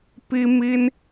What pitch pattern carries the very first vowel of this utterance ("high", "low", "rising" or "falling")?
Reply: high